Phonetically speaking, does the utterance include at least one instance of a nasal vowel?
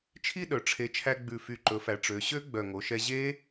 no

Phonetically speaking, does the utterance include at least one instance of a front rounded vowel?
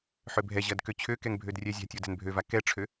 yes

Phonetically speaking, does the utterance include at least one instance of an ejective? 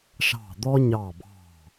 no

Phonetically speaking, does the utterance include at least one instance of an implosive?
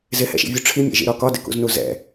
no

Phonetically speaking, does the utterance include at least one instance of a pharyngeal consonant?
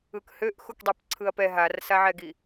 yes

